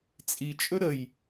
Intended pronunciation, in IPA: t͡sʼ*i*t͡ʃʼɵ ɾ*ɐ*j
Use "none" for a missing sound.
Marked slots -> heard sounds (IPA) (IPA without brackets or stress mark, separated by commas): i, ə